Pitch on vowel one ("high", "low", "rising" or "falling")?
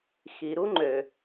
low